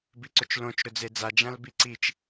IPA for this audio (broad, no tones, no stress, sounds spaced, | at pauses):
b i ǀ ɵ t͡ʃ l õ t͡ʃ ɾ ɵ d͡z e d͡z a d͡ʒ ã l b i ǀ i t͡ʃ